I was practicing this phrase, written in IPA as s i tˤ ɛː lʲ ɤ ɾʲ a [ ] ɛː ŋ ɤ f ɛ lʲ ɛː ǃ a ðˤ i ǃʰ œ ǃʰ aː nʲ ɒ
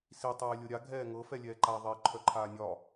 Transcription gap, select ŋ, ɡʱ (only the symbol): ɡʱ